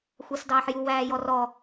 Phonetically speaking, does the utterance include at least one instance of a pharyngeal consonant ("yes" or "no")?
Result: yes